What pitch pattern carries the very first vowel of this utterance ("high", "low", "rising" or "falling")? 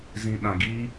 low